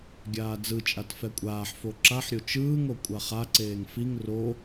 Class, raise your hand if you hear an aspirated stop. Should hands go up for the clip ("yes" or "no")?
no